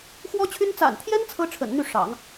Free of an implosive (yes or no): yes